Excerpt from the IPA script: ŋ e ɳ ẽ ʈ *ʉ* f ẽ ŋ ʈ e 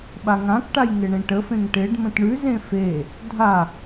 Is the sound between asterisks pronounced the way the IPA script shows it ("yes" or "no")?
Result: no